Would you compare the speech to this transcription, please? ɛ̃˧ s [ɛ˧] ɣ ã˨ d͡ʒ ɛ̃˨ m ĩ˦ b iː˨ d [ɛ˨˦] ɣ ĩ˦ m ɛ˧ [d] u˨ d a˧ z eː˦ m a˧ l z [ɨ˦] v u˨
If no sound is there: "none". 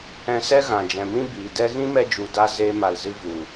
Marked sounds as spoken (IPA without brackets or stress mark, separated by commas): ɛ˦, ɛ˦, d͡ʒ, ɨ˦